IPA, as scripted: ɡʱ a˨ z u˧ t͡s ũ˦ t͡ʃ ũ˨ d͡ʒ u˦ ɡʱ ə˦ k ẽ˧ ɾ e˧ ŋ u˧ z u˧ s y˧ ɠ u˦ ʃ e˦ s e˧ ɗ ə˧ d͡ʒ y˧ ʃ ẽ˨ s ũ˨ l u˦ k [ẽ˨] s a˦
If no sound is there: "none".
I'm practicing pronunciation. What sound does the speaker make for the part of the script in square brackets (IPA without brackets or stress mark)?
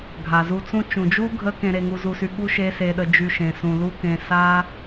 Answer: ẽ˧